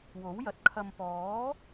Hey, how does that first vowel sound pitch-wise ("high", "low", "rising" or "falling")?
rising